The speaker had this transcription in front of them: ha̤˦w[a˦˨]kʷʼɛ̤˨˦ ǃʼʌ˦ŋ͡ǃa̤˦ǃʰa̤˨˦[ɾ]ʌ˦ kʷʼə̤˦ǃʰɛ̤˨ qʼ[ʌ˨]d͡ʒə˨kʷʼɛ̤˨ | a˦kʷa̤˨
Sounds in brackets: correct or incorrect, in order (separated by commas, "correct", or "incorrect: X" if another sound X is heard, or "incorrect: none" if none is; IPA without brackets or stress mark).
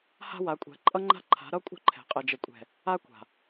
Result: incorrect: a˨˦, correct, incorrect: ə˨